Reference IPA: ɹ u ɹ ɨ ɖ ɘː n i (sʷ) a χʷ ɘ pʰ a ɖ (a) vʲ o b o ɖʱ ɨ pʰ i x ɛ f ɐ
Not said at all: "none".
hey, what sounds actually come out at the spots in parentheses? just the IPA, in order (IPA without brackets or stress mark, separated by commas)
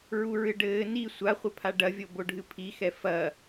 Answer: sʷ, ɐ